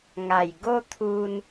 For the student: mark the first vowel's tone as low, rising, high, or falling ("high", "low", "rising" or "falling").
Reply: low